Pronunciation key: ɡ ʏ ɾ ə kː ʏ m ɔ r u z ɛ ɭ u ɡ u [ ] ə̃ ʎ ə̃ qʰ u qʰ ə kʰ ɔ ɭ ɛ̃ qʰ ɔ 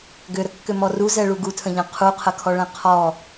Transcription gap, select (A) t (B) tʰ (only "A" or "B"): B